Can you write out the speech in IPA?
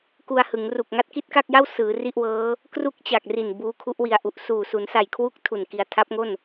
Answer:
k u˧ a̯ h ɯ˩˦ ŋ r u˨˩ k̚ ŋ a˥˩ t̚ k i˥˩ t̚ k a˥˩ k̚ j a˥˩ w s ɯː˩˦ r i˥˩ ʔ w ɤː˦˥ | k r u˥˩ k̚ t͡ɕ a˨˩ k̚ r i˨˩ n b uː˦˥ kʰ u˦˥ ʔ w i˧ a̯ ʔ u˨˩ ʔ s uː˨˩ s u˩˦ n s a˨˩ j kʰ w u˦˥ k̚ tʰ u˨˩ n k i˧ a̯ tʰ a˦˥ p̚ ŋ o˥˩ n

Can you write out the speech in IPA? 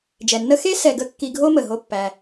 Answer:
d͡ʒ ɛ˨ nː ə˦ x e˦ s ɛ˨ ɡ ə˧ kː i˧ ɡʱ o˦ m ə˨ ɦ o˦ pː æ˧

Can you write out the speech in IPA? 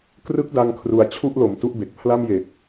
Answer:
k r ɯ˦˥ k̚ d a˧ ŋ kʰ r u˩˦ a̯ t͡ɕʰ u˥˩ ʔ l o˨˩ m t u˥˩ ʔ b e˨˩ k̚ pʰ l a˥˩ m j e˨˩ k̚

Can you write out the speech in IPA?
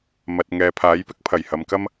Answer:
m ɐ˨ t̚ ŋ ɛː˨ pʰ aː˨˥ j p ɪ˥ k̚ pʰ ɐ˨˩ j h ɐ˨ m k ɐ˥ m

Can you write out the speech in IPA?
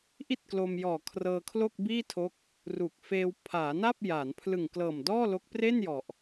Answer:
ʔ i˥˩ t̚ k l o˧ m j ɔː˨˩ kʰ r ɤː˧ kʰ l o˥˩ k̚ b iː˥˩ tʰ o˦˥ k̚ | r u˨˩ k̚ f eː˧ w pʰ aː˩˦ n a˥˩ p̚ j aː˩˦ n pʰ l ɯ˨˩ ŋ k l ɤː˨˩ m d ɔː˥˩ l o˦˥ k̚ p r e˥˩ n j ɔ˨˩ ʔ

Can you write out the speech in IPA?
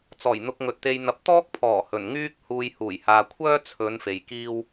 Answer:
t͡s ɔː˨˩ j n̪ ʊ˧ k̚ ŋ ɵ˨ t̚ t̪ e˨ j n̪ ɐ˨˥ p̚ t̪ ɔː˥ k̚ pʰ ɔː˨˩ h ɵ˨˩ n ŋ yː˥ k̚ h uː˨ j h uː˨˩ j h aː˨ kʷʰ œː˥ t͡sʰ ɵ˨˧ n f e˨ j k iː˥ w

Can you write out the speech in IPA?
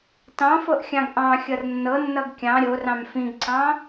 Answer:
t ɑ̃ f ɤ ʔ xʲ ɑ̃ ɡ ʔ ɑ̃ xʲ ʌ r nː ɤ nː ʌ ɡ kʲ ɑ̃ ɾʲ o r ɑ̃ m f ĩ ɡ ǀ ɑ̃

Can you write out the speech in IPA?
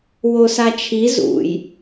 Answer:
w o s a t͡ʃʰ i z ṵ j

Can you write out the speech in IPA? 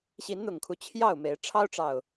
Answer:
ɕ i˨˦ n n̪ ʊ˨˩ ŋ kʰ u˦ t͡ɕʰ j ɑ˥˨ ʊ̯ m e˨˦ ɪ̯ ʈ͡ʂʰ ɑ˦ ʊ̯ ʈ͡ʂ ɑ˨˩ ʊ̯

